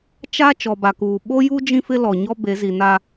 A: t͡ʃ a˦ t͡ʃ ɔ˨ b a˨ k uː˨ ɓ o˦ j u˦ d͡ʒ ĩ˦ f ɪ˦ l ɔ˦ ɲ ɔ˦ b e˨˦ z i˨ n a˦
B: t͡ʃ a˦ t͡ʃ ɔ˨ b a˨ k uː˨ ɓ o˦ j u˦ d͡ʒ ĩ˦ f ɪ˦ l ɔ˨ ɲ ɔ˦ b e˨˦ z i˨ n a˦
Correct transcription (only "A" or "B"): B